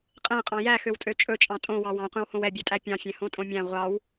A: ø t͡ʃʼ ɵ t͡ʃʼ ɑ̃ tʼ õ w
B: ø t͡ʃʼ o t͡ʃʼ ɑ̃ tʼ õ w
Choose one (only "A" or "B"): A